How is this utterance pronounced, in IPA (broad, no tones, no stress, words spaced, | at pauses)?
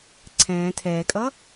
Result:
ǀʰɛ̃ː tʰɛːkʼʌ